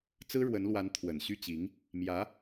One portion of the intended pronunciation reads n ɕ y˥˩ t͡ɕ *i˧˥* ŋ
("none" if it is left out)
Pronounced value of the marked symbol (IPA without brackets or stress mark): i˧˥